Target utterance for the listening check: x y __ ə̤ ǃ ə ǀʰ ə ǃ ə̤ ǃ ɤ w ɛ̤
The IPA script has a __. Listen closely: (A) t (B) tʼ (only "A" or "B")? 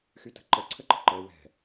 A